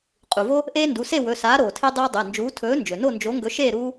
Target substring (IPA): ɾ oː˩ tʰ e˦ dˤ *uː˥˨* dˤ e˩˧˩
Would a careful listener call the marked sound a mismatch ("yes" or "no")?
yes